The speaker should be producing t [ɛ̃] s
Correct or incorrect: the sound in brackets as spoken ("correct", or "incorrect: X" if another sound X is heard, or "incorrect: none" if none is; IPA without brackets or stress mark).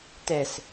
incorrect: ɛ